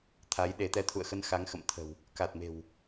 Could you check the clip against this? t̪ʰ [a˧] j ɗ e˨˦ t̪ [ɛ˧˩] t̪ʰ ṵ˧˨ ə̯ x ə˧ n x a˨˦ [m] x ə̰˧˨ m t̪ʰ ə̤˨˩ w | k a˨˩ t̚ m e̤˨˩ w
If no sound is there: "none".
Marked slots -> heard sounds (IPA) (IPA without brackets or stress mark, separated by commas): a˨˦, ɛ˨˦, ŋ